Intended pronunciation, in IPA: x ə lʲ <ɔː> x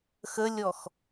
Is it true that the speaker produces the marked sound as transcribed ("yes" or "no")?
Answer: no